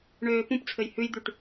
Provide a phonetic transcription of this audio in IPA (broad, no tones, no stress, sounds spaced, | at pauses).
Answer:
ɳ øː p ũ p t͡sʰ ɘ j h ʉ j d̪ y ʈ